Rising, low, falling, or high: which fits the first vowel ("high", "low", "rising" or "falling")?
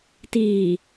low